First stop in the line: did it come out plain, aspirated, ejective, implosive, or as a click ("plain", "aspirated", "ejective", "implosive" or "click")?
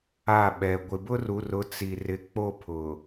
implosive